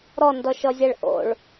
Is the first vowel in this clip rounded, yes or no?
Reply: yes